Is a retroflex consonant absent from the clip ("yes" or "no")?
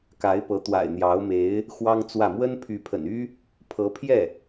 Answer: yes